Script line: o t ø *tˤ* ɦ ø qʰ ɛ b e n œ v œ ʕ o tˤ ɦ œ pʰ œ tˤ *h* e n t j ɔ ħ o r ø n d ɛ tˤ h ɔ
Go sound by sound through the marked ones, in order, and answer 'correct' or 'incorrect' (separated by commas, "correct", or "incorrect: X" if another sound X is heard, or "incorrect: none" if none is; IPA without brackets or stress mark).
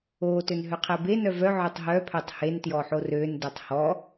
incorrect: n, correct